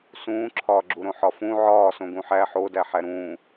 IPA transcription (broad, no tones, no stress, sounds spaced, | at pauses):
s ũː ǁʰ ɒː ɡ͡ǁ u ɾ õ ħ ɒ f ũ ʕ ɒː s õ ɡ ũ ħ æ ħ o d æ ħ æ ɾ ũː